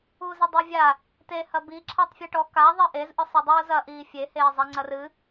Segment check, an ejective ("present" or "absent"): absent